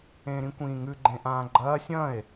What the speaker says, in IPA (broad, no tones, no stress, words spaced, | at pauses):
ẽɾĩkʷĩːŋʉ ɡ͡ǃẽʔãːɡ͡ǃɐː sʲɐ̃e̯